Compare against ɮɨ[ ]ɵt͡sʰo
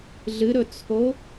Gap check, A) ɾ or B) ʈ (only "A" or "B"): A